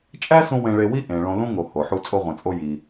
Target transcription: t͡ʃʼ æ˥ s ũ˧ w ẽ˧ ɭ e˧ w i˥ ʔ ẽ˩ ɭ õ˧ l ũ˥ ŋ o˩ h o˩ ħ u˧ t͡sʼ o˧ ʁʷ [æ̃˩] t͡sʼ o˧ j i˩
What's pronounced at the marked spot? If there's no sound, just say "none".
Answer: æ̃˩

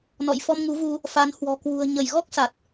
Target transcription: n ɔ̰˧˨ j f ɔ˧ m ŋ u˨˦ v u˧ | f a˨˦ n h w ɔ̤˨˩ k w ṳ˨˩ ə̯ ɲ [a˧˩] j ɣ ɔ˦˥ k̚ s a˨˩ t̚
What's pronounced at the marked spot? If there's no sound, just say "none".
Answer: ə˧˩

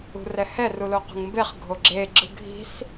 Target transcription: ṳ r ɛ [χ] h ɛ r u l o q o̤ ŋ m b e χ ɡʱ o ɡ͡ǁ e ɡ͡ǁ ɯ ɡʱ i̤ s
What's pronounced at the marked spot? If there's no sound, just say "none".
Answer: none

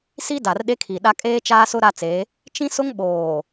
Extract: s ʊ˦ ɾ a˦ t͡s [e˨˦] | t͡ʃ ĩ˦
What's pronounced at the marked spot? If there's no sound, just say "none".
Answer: e˨˦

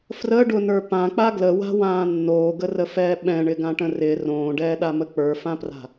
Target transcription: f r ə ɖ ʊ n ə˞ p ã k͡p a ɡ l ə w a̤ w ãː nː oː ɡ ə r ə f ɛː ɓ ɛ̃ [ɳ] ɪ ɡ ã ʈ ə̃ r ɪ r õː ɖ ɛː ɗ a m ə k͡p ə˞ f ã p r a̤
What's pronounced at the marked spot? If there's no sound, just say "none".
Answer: ɳ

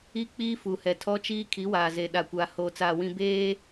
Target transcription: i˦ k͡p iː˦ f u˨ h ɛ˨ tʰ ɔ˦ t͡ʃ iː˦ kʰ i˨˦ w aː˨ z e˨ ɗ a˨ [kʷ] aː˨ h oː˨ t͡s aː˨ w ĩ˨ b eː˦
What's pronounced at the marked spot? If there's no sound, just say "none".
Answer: kʷ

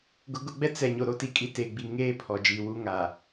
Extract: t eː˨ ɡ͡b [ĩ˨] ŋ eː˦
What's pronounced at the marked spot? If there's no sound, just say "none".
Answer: i˨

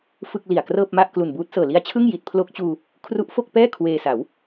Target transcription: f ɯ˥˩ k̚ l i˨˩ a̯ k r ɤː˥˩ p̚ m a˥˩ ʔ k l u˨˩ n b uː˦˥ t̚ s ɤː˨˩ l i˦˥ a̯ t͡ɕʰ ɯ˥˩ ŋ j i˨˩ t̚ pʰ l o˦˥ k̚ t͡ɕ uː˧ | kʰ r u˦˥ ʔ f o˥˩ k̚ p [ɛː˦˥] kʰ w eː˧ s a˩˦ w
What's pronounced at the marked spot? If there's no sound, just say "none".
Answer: ɛː˥˩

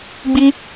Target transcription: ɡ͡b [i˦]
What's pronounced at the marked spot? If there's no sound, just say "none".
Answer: i˦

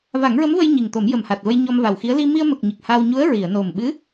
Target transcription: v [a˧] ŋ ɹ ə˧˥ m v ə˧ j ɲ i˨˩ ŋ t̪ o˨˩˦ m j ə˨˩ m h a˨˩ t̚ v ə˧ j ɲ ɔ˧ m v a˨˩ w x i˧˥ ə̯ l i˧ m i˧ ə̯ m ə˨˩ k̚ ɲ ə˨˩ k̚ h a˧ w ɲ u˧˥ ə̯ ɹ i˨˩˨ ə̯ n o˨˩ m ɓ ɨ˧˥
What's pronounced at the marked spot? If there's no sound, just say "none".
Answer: a˨˩˦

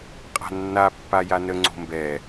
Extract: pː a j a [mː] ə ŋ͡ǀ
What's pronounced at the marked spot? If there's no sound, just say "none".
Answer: n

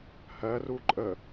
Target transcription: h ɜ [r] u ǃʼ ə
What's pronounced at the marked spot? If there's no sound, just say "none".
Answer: r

